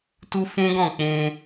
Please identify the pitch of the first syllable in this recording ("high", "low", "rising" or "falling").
high